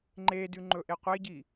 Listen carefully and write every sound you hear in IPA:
ŋ͡ǃ e d ʉ ŋ͡ǃ ɵ ʔ e qʷ e ɟ i

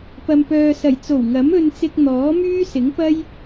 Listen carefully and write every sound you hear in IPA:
p ɐ˨ m p œː˨ s ɐ˨˩ j t͡s o˨˩ w ŋ ɐ˨˥ m ɵ˧ n t͡s ɪ˧ k̚ n̪ ɔː˨˥ m yː˥ s ɪ˨˥ ŋ p ɐ˥ j

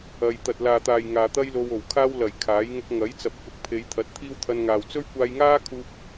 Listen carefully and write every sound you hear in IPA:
ɐ˧ j t̪ ɐ˨ t̚ l aː˨ t̪ aː˨ j ŋ aː˨ t̪ ɐ˥ j l o˧ w o˨˩ w kʰ aː˥ w l ɐ˨˩ j kʰ aː˨˥ j ŋ ʊ˧ k̚ ŋ ɐ˨˥ j t͡s ɐ˨ p̚ k ʊ˨˥ k̚ pʰ e˨˧ j t̪ʰ ɐ˨˥ t̚ t̪ʰ iː˥ w t̪ʰ ɐ˧ n ŋ aː˨ w t͡s ɵ˥ ɥ kʷ aː˧ j ŋ aː˥ kʰ uː˧ p̚

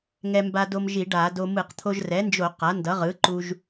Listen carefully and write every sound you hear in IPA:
ŋ ɛ˧ m b a˧ d o˧ m ʒ i˧˩˧ ɖ a˧˩˧ d o˧ m ɯ˧˩˧ q t̪ʰ o˧ ʒ r ɛ˩˥ n d͡ʒ o˧˩˧ q a˩˥ n d ʌ˩˥ ʁ ɯ˩˥ ǃ u˧ ʒ

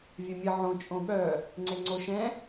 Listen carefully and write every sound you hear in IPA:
vʲ œ mʲ ə ʕ õ t͡ʃʼ õ ɠ œ | ŋ͡ǀ e ŋ͡ǀ o ʃ ɛ̃

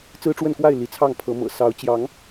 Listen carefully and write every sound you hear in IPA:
t͡s ɹ̩˦ ʈ͡ʂ w ə˥˨ n k w a˥˨ ɪ̯ l i˨˦ t͡sʰ ɑ˥˨ ŋ pʰ ɤ˨˦ m ɤ̰˨˩ s ɑ˨˦ ʊ̯ t͡ɕ j ɑ˨˦ ŋ

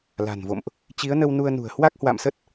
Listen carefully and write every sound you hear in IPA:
l a̤˨˩ n v o̰˧˨ m ʔ | t͡ɕ i˨˦ ə̯ n ə˧ w n u˧ ə̯ n ṳ˨˩ ə̯ h w a˦˥ k̚ h w a̰˧˨ m s ə˦˥ t̚

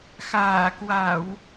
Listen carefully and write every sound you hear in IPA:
x aː˧˩ k w a˧˩˨ w

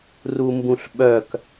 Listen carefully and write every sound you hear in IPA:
r u m b ũ ɬ ɓ œ k

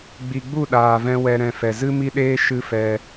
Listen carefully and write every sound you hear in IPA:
ɡ͡b i˨ ɡ͡b u˦˨ ɗ aː˨ v ɛ̃˧ w ɛ˧ ɾ ɛ̃˧ f ɛ˨ z ɨ˦ m i˦ ɗ eː˦ ʃ ɨ˦ f ɛ˧

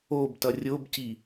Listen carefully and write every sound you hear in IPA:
o b t ʌ rʲ o b c i

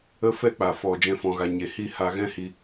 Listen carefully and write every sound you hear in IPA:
ə˦ f ɛ˦ k͡p a˨ f ɔ˨ d͡ʒ ɛ̃˧ f ɔ̃˨ ɣ a˨ ɲ e˨ h i˦˨ h a˧ ɣ ɛ̃˦ h i˧

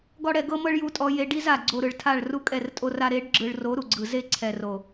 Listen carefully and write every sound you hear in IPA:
ɡ ɔ˦ ɽ ɛ˧ ɡ ɤ˦ m ɤ˦ ɭ j u˧ tʼ ɔ˧ j e˧ ɖ i˦ z a˨ ɡ͡ǀ o˧ ɾ ɯ˨ ɭ tʰ a˦˨ ɭ r u˦ kʼ ɛ˦˨ r tʼ o˦ r a˦ ɾ e˨˦ ɖ ɡ͡ǁ ɯ˨ ɭ r o˨˦ ɾ u˨ ɡ͡ǀ ɯ˨ z e˦˨ ǀʰ ɛ˨ r o˨

